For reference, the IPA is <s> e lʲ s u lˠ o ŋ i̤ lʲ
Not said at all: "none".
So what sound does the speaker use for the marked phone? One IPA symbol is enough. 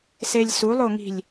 s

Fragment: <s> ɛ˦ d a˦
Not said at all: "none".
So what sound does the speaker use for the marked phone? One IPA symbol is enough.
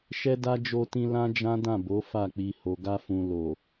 ʃ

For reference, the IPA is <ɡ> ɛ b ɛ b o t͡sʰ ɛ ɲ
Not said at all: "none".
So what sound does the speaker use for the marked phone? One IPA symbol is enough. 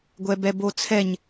ɡʷ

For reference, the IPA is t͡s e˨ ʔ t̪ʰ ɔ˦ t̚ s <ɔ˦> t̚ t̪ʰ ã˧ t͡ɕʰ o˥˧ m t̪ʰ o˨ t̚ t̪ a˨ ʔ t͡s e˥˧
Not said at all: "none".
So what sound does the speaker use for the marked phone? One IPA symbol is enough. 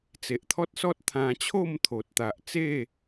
ɔ˦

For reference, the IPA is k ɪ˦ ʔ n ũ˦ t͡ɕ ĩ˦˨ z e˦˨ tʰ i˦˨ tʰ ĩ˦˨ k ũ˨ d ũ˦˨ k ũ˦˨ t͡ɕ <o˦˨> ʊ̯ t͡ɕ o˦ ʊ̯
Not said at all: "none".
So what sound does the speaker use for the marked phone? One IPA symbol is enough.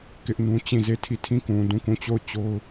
o˦˨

